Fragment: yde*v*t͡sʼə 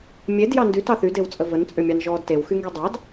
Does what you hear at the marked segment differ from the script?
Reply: yes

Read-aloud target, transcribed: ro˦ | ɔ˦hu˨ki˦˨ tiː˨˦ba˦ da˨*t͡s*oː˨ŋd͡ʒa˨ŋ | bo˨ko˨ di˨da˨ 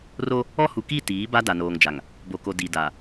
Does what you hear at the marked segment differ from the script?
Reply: yes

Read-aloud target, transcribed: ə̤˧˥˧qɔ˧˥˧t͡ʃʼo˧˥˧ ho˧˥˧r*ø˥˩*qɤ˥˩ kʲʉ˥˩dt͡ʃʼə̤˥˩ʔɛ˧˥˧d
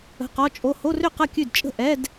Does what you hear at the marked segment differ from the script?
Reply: no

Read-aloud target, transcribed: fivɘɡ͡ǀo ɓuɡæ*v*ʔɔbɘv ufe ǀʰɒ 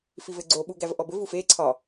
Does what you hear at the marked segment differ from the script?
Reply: no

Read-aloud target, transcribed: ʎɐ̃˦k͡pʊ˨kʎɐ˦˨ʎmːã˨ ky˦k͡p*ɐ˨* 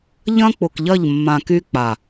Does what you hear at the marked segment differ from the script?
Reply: yes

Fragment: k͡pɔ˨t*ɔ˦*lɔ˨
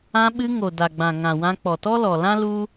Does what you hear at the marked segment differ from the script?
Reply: no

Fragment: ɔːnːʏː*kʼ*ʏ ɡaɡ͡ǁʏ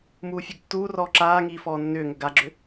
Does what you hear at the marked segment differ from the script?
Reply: yes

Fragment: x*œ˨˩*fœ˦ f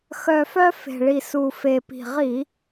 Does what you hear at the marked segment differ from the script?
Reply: no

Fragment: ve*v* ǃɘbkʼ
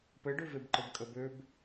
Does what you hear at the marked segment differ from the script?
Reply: yes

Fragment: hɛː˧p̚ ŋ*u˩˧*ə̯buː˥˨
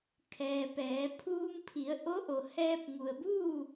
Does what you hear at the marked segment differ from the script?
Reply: yes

